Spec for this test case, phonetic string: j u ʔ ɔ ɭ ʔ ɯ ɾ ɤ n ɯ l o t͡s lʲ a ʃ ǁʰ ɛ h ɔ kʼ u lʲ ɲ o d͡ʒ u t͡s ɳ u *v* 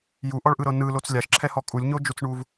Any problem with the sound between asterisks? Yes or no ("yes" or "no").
no